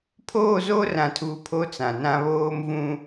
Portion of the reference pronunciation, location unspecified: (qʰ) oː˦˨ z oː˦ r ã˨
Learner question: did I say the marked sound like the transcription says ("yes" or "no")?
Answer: no